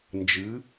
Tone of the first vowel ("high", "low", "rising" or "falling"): rising